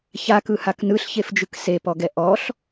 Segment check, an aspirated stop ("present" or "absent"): absent